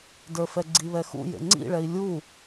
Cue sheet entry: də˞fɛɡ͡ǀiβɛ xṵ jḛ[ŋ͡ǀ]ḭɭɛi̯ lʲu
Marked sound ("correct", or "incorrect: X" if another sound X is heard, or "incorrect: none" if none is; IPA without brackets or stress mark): correct